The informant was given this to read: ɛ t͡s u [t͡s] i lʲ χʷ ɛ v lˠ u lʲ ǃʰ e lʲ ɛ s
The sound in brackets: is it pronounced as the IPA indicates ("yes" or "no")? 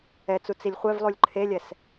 yes